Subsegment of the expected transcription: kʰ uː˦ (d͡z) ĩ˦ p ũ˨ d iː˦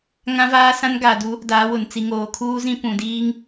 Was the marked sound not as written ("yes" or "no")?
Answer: yes